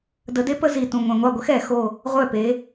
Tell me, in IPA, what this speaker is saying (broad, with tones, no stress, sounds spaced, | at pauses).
d ə˨˦ d e˦ p ə˦ z i˨˩ t ũ˨˩ ŋʷ ɛ̃˨˩ ŋʷ ɑ˥˩ ɡʷ ə˦ x ɛ˧˩˧ x o˨˩ | ʁʷ œ˥˩ p e˨˦